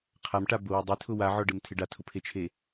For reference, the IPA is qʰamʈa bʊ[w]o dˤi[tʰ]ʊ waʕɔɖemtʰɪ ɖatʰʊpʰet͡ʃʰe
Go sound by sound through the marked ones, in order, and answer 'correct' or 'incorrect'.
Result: correct, correct

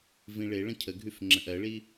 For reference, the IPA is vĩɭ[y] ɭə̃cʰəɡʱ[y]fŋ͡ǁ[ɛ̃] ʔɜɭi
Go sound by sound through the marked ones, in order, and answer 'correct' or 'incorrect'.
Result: incorrect: e, correct, incorrect: ə̃

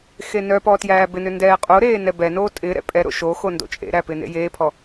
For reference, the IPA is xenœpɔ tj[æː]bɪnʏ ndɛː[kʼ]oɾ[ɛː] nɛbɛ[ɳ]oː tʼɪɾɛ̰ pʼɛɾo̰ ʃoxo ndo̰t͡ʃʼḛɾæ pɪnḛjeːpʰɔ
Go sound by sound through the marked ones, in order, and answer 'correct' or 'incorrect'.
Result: correct, incorrect: qʼ, incorrect: eː, incorrect: n

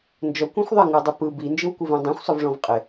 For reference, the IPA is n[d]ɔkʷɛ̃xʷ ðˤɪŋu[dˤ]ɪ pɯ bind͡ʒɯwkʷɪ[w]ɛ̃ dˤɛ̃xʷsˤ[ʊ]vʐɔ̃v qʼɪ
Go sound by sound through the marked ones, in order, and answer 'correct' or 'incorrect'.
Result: incorrect: d͡ʒ, correct, incorrect: v, correct

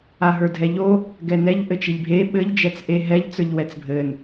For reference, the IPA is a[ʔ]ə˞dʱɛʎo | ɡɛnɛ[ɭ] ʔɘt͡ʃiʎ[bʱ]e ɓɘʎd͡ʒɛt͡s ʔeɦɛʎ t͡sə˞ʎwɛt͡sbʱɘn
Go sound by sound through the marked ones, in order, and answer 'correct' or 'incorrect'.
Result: incorrect: ɦ, incorrect: ʎ, correct

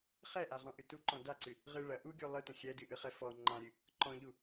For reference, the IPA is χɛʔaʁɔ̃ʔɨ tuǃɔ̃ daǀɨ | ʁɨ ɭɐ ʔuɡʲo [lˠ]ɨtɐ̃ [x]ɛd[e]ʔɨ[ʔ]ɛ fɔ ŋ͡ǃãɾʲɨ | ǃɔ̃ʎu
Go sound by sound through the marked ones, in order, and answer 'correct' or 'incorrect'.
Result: correct, incorrect: xʲ, incorrect: ɨ, incorrect: χ

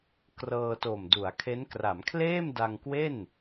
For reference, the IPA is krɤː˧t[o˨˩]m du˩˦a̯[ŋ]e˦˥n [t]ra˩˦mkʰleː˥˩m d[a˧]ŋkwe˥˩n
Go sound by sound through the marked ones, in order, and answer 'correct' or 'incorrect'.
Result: correct, incorrect: kʰ, incorrect: k, correct

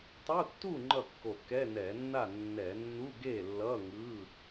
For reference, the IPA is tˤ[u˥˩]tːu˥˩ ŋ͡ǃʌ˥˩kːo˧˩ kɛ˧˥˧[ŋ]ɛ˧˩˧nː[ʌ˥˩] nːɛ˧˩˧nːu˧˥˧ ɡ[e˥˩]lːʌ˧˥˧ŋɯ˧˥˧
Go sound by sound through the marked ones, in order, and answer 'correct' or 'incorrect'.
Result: incorrect: u˧˥˧, incorrect: n, incorrect: a˥˩, correct

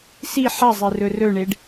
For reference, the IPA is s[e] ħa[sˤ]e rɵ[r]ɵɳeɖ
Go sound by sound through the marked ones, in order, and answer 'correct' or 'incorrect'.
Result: incorrect: i, incorrect: zˤ, correct

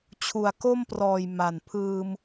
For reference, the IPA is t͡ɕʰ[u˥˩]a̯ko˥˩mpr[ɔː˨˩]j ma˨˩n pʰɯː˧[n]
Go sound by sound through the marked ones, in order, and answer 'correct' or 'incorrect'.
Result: incorrect: u˨˩, correct, incorrect: m

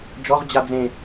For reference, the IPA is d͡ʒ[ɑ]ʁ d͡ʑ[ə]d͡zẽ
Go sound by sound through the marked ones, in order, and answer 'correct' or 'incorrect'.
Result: incorrect: ɔ, incorrect: a

